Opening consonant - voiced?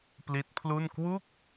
no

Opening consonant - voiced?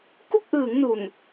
no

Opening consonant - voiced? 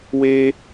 yes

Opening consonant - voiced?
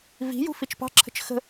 yes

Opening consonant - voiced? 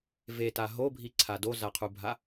yes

